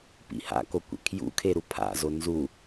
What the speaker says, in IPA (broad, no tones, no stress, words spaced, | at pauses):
pḭha̰kokʷḛ kʰjṵkʰeɾu pʰa̰zo nzu